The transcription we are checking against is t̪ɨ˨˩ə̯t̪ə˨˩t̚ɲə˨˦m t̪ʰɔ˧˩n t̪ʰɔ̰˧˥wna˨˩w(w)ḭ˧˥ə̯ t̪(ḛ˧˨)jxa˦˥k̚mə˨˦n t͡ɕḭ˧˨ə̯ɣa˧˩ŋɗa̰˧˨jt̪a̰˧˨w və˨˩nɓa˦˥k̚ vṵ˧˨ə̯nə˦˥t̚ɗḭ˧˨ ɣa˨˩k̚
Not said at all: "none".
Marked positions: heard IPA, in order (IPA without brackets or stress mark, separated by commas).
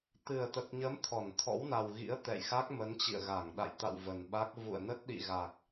ɣ, ɛ̰˧˨